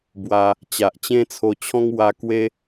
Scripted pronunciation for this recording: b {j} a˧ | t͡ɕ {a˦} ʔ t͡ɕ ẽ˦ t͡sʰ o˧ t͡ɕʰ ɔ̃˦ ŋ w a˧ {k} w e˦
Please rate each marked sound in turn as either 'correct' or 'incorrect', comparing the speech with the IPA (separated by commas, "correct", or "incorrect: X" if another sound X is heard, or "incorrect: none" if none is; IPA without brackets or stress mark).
incorrect: w, incorrect: a˨, correct